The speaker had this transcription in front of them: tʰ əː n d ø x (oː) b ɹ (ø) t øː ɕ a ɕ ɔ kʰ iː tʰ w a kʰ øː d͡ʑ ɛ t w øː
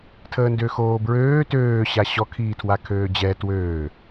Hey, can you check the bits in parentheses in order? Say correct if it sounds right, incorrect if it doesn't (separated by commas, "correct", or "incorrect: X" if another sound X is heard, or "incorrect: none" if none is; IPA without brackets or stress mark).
correct, incorrect: øː